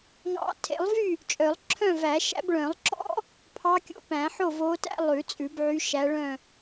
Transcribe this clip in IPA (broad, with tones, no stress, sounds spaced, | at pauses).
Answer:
ŋ ɑ̰˨˩˦ tʰ ḛ˨˩˦ lˠ v y˥˨ | t͡ʃʼ œ˨˩˦ lˠ ǁʰ œ̃˥˨ v æ˨˩˦ ʃ æ̰˧˥ b ɭ œ̃˨˩˦ lˠ ǁ ɔ̰˥ | pʰ ɑ˧˥ kʲ o̰˧˥ p æ̃˨˩˦ ħ o˥˨ v o˧˥ t æ̰˥ lˠ ʉ˨˩˦ t͡sʼ ʉ˨˩˦ b ʕ y˧˥ ʃ æ˧˥ ɭ œ̃˥˨